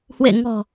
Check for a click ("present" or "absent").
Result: absent